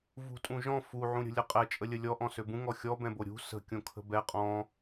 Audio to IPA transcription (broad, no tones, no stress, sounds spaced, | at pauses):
v ṳ tʼ ũ ʒ ɔ̃ f u ʕ ũ ɾʲ ə̤ lʲ ə qʼ ɛ t͡ʃʼ ə lʲ ə lʲ ɔ ʔ ɔ̃ s ø b ũ ŋ ɔ xʲ ɔ b ɛ̃ b o ɾʲ ṳ s ə̤ kʲ õ kʰ ə̤ b ɛ qʼ ɔ̃